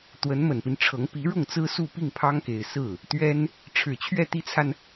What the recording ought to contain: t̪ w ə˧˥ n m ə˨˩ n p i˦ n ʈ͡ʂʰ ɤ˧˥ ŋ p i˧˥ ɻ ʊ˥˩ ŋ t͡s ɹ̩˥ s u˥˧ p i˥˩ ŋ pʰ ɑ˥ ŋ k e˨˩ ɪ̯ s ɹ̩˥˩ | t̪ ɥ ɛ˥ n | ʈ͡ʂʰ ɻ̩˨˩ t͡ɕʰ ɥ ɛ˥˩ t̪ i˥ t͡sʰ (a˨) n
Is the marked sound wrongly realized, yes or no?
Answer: no